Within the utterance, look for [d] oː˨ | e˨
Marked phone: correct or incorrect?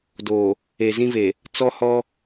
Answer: correct